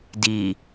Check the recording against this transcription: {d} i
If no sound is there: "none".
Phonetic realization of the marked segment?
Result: d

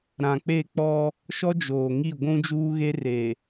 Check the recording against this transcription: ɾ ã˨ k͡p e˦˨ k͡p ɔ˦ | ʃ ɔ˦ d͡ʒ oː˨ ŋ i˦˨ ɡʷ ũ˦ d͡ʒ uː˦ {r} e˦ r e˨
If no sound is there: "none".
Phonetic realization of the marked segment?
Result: ɣ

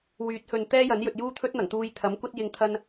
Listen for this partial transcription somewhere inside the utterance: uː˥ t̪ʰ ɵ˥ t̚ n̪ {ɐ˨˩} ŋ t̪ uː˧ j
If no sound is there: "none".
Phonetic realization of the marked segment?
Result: ɐ˨˩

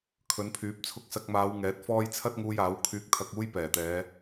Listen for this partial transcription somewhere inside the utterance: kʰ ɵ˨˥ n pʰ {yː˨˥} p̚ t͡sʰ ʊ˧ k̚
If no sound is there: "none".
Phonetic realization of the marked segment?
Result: yː˨˥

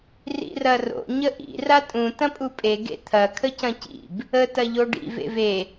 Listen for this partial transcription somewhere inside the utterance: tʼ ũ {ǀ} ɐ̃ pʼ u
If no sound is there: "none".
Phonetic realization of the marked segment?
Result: t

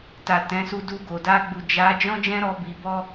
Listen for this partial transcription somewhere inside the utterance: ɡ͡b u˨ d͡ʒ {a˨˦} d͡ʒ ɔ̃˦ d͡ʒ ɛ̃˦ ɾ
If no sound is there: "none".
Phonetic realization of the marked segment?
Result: a˨˦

